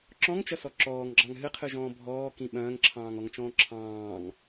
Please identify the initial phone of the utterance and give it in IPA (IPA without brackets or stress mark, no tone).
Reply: ǁ